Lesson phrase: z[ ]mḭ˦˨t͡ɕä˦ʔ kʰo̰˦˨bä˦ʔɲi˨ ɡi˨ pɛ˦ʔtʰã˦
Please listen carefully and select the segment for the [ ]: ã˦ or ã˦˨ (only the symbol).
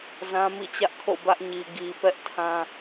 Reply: ã˦